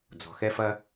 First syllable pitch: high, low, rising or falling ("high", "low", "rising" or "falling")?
low